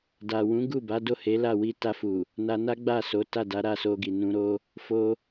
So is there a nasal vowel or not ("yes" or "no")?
yes